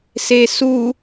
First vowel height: mid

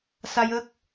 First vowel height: low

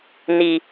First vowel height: high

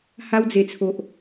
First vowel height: low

